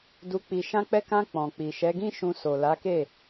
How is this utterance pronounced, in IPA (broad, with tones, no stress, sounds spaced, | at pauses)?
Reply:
d u˧ k͡p i˨ ʃ ã˧ k͡p ɛ˧ k ã˧ k͡p ɔ̃˨ k͡p i˨ ʃ ɛ˨˦ ɡ ĩ˦ ʃ ũ˧ s o˨ l a˨˦ k e˦˨